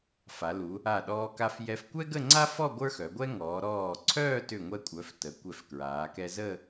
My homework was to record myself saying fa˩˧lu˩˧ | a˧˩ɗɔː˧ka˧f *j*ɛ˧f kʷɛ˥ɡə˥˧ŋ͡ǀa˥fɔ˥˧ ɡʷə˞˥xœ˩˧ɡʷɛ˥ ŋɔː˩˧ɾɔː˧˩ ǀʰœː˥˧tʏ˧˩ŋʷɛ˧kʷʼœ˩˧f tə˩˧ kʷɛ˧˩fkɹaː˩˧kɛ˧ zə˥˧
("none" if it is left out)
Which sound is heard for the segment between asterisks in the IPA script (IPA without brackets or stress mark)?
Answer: j